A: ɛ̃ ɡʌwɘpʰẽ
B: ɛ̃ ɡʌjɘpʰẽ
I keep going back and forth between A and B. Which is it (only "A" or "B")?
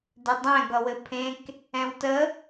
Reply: A